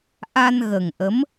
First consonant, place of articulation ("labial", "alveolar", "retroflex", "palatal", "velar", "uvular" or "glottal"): glottal